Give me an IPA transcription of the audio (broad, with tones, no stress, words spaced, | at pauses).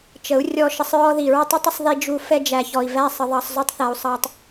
t͡ʃə˨˦u̯ rʲɔ˧ʃə˧sˤ ɹɔ˦ði˨ ɹə˦tˤu˦tˤə˦sˤ ði˧d͡ʒu˧ fɛ˧d͡ʒæ˨çɔ˨i̯væ˦˨ sˤə˧ðˤɑ˧sˤzu˦tˤθæ˧u̯ sˤɑ˦tˤ